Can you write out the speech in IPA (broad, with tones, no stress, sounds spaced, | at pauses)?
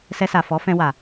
s ɛ˧ s a˨ f ɔ˨˦ f ɛ̃˧ w a˨